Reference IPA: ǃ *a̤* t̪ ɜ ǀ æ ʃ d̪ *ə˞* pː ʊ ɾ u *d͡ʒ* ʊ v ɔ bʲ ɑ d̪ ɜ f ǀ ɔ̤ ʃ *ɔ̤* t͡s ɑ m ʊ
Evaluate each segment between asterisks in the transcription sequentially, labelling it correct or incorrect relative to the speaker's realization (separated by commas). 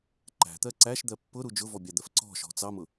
incorrect, incorrect, correct, correct